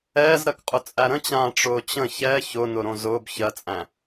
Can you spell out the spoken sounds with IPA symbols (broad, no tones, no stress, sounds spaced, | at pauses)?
ɛː z ɾ ɜ k qʼ ʊ t͡sʼ æ ɾ ə̃ t͡ɕ ãː ʈ͡ʂ ʊː t͡ɕ ə̃ ç ɛ ç ʊ n ʊ ɾ õ z ʊː b ç ɜ t͡sʼ æ̃